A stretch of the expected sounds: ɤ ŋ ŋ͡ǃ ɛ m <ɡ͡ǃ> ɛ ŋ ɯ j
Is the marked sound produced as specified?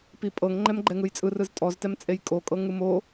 yes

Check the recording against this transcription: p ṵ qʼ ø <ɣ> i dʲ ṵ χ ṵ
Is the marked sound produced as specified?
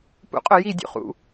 no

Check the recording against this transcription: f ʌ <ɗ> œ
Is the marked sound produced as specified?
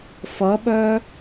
no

